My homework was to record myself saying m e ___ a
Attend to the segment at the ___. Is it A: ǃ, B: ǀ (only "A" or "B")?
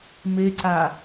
B